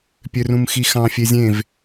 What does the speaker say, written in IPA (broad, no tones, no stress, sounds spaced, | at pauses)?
pʲ ø r ũ m x i x ɑ̃ fʲ e zʲ ẽ v